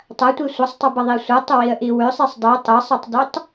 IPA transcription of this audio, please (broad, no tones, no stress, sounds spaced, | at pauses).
tˤ ɐ tʷ i sʷ ɐ sˤ tˤ ɐ b ɐ ðˤ i sʷ ɐ tˤ ə w i ə̯ ʔ i w ʏ sˤ i sˤ dˤ i tˤ ə sˤ i tˤ d ʏ tˤ